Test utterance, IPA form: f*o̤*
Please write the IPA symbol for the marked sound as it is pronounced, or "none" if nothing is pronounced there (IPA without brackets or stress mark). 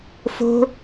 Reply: o̤